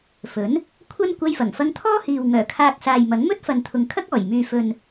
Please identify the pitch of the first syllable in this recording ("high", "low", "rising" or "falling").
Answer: rising